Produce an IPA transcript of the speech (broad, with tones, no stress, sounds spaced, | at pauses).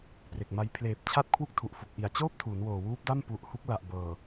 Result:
p r e˨˩ k̚ m a˧ j pʰ l eː˨˩ p̚ t͡ɕʰ a˥˩ t̚ kʰ w u˥˩ k̚ tʰ u˨˩ ʔ f u˨˩ k̚ ʔ i˨˩ a̯ t͡ɕ oː˥˩ p̚ tʰ uː˩˦ n w oː˨˩ w uː˦˥ p̚ d a˥˩ m p u˨˩ ʔ h u˦˥ k̚ l a˨˩ ʔ b ɤː˨˩